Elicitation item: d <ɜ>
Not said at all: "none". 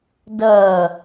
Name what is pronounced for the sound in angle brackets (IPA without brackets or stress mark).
ɜ